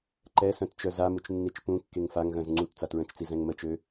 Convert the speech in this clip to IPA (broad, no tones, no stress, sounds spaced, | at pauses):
ǃ ɛ s œ̃ t t͡ʃ œ z a m u t͡ʃ nː i t͡ʃ p ũ kː e ŋ f a ŋ ɣ œ̃ z ŋ͡ǀ u t t͡s a t ɹ ə̃ t͡ʃ t͡s i z ɛ̃ ŋ m ə t͡ʃ ø